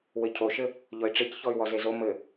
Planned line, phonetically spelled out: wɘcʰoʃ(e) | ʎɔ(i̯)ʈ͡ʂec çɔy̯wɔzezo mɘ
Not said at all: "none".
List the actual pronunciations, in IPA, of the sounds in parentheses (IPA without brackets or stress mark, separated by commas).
ɘ, i̯